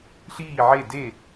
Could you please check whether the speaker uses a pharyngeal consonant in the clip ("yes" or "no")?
yes